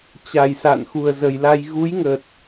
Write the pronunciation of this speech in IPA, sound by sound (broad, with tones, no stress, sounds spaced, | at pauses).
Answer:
t͡ɕ a˨˩ j s a̰˧˨ n x u˨˩ ə̯ z ə˨˩ j l a˧ j ɣ u˨˦ j ŋ ə˨˩ t̚